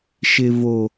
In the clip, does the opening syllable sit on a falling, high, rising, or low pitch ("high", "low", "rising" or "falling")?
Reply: low